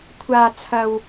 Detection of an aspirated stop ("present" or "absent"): present